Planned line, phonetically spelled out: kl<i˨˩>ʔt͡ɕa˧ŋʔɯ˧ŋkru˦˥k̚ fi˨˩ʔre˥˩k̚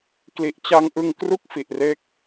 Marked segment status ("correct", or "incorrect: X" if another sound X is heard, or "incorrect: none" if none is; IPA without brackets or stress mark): correct